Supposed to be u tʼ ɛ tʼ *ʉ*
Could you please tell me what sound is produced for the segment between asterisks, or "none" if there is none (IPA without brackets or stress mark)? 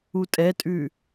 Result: ʉ